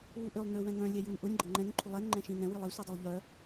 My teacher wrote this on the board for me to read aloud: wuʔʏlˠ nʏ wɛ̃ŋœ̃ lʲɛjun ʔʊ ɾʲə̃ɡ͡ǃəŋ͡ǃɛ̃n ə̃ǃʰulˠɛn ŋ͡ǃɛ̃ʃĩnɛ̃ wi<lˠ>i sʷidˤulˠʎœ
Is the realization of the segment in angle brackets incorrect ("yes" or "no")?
no